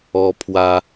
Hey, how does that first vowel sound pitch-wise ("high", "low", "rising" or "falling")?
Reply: low